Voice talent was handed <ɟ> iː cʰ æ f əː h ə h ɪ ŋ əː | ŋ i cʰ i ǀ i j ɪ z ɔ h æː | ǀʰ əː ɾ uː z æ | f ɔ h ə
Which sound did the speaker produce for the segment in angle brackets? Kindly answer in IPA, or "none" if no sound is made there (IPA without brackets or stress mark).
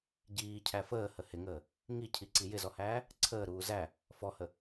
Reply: ɟ